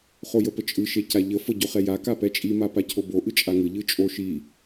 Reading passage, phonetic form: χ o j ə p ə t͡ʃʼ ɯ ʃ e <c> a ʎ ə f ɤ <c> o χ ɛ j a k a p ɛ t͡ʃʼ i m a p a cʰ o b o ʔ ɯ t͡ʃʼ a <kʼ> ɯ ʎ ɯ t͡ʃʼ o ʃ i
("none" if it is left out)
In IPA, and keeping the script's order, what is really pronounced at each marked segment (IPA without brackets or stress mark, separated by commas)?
c, ɟ, ŋ